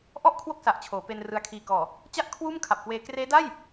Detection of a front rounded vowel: absent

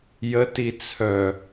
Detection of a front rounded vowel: present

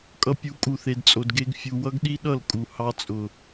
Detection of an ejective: present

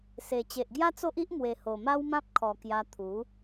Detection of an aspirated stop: present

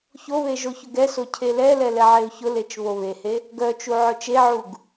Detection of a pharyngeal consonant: present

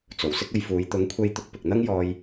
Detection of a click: absent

